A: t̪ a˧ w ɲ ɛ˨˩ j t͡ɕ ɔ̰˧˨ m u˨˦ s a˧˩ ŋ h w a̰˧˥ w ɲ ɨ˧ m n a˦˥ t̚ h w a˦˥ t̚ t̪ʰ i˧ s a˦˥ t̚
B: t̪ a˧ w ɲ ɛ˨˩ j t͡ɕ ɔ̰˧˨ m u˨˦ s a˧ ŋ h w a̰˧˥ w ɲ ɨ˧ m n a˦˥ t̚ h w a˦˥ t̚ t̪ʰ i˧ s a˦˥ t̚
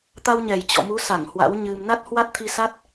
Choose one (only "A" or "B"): A